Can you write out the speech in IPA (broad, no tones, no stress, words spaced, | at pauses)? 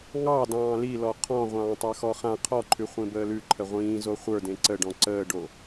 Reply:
ŋɑ dɑ̃ːlilɔ qʰɔ̃ ʁʷɑ̃ːtˤaxɔχã qʰɔǃʰʉ χʷẽbəːlʉ ǃʰəʁʷĩːzo χʷə˞dẽ ǀəɖɔ̃ ǀəːɖo